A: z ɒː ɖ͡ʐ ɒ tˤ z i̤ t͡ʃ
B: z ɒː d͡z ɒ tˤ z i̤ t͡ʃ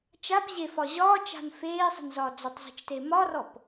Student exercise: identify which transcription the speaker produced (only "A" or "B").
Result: B